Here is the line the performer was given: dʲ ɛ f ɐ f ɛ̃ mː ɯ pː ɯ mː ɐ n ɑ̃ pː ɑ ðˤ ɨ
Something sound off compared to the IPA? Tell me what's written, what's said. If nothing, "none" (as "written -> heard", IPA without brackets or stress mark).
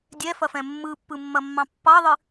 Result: n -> mː